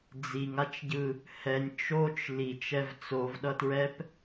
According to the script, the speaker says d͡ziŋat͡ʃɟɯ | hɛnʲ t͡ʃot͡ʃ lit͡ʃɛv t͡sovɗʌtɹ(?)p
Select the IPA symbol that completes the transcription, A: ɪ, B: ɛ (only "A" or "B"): B